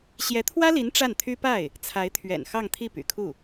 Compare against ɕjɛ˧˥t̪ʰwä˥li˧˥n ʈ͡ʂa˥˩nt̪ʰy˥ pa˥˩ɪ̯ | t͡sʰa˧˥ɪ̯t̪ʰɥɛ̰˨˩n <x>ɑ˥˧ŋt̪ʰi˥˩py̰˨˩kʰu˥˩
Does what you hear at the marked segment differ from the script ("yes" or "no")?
no